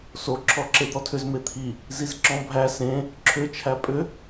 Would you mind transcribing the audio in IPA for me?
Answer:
s o ǁʰ ɔ ǁ e d̪ ɔ tʰ ʏ z m e t̪ʰ i | z i z ǁ ɔ̃ bʱ æ s ẽ | ǁʰ ʏ t͡ʃʰ æ pʼ ʏ

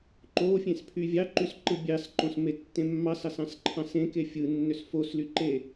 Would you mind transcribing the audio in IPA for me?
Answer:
ǃ o fʲ ẽ s pʰ y vʲ ɑ ǃ y s ǃ ɯ bʲ ɑ s ǃ õ s m e tː ẽ mː ɑ s ɑ s ɑ̃ s ǃʰ ɑ̃ s ẽ k e fʲ ɯ nː ø s f o s l y ǃ e

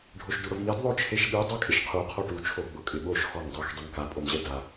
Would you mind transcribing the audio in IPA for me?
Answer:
ɖʱ o ʃ d u ɽ ʊ v m i d ðˤ o t͡ʃʰ e ʃ ɓ i dˤ ɛ kʼ ɪ ʃ qʰ u qʰ ɔ ʈ u t͡ʃʰ o ɡ͡b ʊ kʼ ɪ ɓ o ʃ x ɔ ŋ dˤ i x dˤ e ŋ k a pʼ o m ʑ ɛ d a

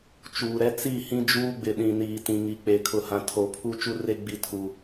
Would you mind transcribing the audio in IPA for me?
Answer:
t͡ʃ uː˨ ɾ ɛ˦ t͡s i˦˨ h ĩ˦ d͡ʒ uː˦ ɡ͡b ɪ˨ ɗ ĩ˨ n iː˨ t ĩ˨ ŋ i˨ k͡p e˨ kʰ ʊ˨ h ã˨ tʰ o˨˦ pʰ u˦ t͡ʃ u˦ r e˦ ɡ͡b i˦ tʰ u˦

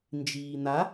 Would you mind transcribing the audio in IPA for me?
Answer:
n d͡ʒ iː n̪ a

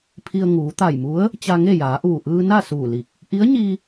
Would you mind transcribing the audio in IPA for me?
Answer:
pʰ i˧ ə̯ ŋ uː˩˧ t̪ a˧˩ j m u˧˥ ə̯ | t͡ɕ a˧ ŋ e˥˨ j aː˩˧ ʔ uː˧˩ ʔ ɯː˧ n a˥˨ s uː˧˩ l i˧˩ k̚ | ʔ i˧˥ ə̯ ɲ i˧

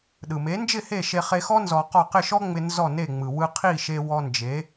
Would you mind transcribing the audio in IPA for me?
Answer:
ɗ ɯ˩ m e˩˥ n d͡ʒ ɪ˥˩ h e˥˩ ʃ e˧ χ e˧ x ɔ˥ n z ɔ˧ q ɔ˥˩ q ɪ˥˩ ʃ ɔ˥ ŋ͡m ɪ˧ n z ɔ˥˩ n e˥˩ ŋ͡m ɯ˩ w ɯ˧ qʰ i˥˩ ʃ e˧ w ɔ˧ n d͡ʒ e˩˥

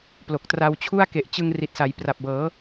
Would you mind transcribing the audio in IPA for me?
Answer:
p l o˨˩ k̚ t r a˧ w t͡ɕʰ u˥˩ a̯ k e˨˩ ʔ t͡ɕ ɯ˧ ŋ r i˨˩ t̚ s a˩˦ j p r a˨˩ p̚ b ɤː˩˦

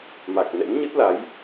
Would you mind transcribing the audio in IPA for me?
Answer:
m a˨˩ k̚ n ɛ̰˧˥ n ɲ ə˦˥ t̚ l a˨˦ j

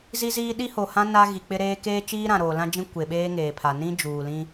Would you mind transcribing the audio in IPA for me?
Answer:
z i˦ z iː˦ ɗ i˦ h o˨ h ã˦ n a˦ ɣ i˨ k͡p ɪ˦ ɾ eː˦ k eː˦ t͡ʃ iː˦ ɾ ã˨ ɾ oː˨ l ã˦ d͡ʒ ĩ˦ kʷ e˨ ɓ eː˦ ŋ eː˨ pʰ a˨ n ĩ˦ d͡ʒ uː˨ l ĩ˦

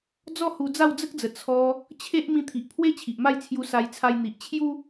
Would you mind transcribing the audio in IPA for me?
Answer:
d͡z ɔ˦ h u˧ d͡z a˥˧ w d͡z ə˦ k̚ d͡z ə˨˩ t͡sʰ ɔ˧ | t͡ɕʰ e˦ ʔ m ĩ˧ t̪ʰ i˨ ʔ pʰ w e˦ t͡ɕʰ i˨ ʔ m a˥˧ j t͡sʰ j u˧ s a˧ j t͡sʰ a˧ j n̪ i˨ ʔ t͡ɕʰ j u˦

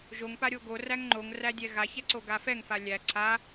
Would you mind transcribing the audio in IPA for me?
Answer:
ʒ o ŋ p a ɾʲ o ɡ o r æ ŋ ŋ͡ǃ o ŋ r æ dʲ ɛ ɣ a ç ɛ ǀ o ɡ a f ɛ ŋ f a lʲ æ ǀʰ a

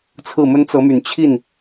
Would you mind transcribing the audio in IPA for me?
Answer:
t͡sʰ ɹ̩˥˩ m ə˥ n t͡s ɤ˧˥ m y˨˩ n t͡ɕʰ i˥˩ n

